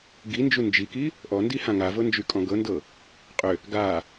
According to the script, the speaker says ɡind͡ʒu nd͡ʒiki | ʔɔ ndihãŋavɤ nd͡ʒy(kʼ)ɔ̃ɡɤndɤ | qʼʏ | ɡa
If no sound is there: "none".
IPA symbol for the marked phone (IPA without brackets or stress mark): kʼ